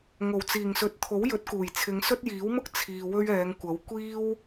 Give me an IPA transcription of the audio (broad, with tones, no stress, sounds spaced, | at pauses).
ŋ o˨˩ w t͡s iː˨˩ ŋ s ɵ˨˥ t̚ t̪ʰ o˨˥ w j ɵ˨˥ t̚ k uː˨˩ j t͡sʰ ɪ˨˧ ŋ s ɵ˥ t̚ j iː˨˥ w m ʊ˥ k̚ t͡sʰ iː˨ w ɵ˥ ɥ ɛː˨˧ ŋ kʷ ɐ˨˥ w kʷ iː˥ w